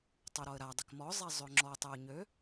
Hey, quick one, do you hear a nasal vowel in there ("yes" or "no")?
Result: no